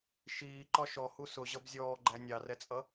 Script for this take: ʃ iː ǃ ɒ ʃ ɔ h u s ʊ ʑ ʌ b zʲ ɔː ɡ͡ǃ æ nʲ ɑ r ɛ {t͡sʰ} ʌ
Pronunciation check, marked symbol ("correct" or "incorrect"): incorrect